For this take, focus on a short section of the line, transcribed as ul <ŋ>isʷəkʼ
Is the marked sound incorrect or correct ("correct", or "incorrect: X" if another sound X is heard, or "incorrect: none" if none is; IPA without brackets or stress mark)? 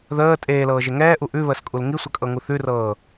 correct